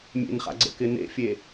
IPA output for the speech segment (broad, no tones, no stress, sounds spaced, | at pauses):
mʲ ḛ n χ a̰ ɡ͡ǀ ə̰ k ɪ n ḛ fʲ e